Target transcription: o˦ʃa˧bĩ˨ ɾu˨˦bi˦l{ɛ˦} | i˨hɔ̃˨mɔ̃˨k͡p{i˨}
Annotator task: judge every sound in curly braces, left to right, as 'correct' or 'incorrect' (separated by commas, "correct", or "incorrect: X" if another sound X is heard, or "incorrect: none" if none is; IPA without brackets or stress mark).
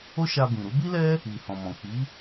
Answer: correct, incorrect: i˨˦